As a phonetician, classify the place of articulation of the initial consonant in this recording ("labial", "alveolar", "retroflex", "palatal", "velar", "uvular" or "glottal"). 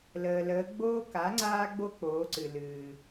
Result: alveolar